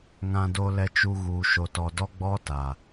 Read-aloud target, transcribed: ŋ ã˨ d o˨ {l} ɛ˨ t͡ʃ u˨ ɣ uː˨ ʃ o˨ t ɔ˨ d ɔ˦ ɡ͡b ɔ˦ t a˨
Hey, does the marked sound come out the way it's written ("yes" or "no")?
yes